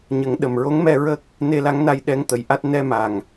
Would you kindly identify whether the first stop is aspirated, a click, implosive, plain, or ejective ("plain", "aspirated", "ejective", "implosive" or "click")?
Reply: implosive